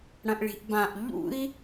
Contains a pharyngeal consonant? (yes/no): no